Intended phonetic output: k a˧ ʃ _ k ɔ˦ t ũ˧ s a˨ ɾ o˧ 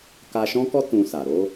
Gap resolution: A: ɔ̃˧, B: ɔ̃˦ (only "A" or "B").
B